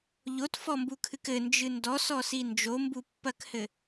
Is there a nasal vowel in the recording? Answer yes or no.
no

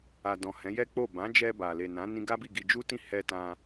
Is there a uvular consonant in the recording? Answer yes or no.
no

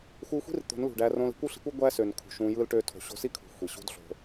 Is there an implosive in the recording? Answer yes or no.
no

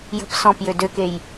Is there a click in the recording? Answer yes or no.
no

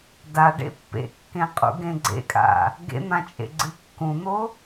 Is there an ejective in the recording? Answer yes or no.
yes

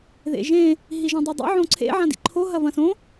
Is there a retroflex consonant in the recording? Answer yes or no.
no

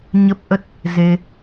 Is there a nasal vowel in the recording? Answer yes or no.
no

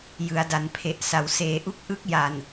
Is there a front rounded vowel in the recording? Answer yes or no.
no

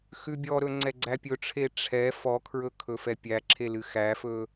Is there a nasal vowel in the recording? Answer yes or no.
no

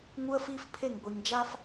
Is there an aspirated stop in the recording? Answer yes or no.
yes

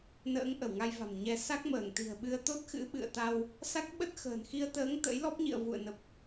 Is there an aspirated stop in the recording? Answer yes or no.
no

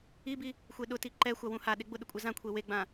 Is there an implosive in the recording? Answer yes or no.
yes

